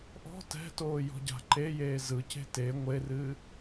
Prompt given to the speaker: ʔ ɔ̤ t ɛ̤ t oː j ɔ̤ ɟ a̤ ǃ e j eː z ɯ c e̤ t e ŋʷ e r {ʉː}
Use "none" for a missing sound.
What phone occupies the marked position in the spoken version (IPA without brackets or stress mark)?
ɨː